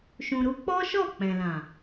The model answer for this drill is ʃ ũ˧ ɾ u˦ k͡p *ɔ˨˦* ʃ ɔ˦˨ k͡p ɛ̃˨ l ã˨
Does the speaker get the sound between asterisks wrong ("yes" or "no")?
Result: yes